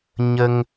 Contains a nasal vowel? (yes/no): no